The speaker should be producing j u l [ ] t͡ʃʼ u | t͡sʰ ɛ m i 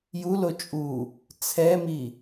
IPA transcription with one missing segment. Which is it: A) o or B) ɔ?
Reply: A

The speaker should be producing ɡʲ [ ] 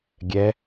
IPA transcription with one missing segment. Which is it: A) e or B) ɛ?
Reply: B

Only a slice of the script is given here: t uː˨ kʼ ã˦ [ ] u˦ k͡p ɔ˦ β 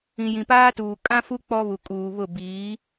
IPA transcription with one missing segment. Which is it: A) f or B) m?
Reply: A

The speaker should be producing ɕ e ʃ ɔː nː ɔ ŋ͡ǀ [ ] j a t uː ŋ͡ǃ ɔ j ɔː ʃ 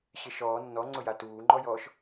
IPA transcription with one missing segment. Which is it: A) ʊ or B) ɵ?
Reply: A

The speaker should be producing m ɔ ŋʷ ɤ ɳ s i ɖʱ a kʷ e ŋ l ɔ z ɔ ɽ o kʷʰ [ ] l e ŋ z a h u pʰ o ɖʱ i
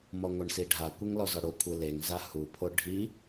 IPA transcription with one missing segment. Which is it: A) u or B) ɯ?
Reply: B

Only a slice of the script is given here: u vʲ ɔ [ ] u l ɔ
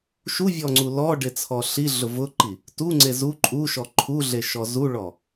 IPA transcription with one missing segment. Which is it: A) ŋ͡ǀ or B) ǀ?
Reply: A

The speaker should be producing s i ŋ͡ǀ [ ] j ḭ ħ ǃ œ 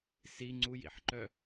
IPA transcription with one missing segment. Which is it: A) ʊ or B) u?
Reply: B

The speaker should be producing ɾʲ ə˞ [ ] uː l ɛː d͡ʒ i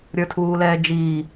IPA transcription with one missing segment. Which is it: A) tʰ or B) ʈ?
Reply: A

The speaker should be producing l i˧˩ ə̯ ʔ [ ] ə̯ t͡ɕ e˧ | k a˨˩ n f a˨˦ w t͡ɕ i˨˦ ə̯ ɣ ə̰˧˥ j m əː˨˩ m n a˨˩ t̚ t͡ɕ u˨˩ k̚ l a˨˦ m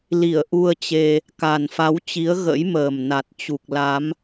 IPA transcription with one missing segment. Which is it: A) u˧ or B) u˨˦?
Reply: A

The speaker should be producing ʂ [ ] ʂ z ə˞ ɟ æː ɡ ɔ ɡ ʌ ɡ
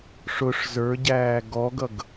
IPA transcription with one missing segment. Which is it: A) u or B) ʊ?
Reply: B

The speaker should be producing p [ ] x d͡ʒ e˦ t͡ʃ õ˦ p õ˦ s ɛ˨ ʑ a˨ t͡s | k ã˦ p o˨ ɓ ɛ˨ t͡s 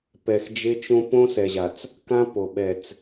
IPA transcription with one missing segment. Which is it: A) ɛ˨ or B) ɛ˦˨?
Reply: A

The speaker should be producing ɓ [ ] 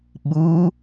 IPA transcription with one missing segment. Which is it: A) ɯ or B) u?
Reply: B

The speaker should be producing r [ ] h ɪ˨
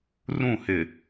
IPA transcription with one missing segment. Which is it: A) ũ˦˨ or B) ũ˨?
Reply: A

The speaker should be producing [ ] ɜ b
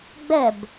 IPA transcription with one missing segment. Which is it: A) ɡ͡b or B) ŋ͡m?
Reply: A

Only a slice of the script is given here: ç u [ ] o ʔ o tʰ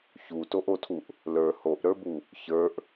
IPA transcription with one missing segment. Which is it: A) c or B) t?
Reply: B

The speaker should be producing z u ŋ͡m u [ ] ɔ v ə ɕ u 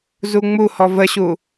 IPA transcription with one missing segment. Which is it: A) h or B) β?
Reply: A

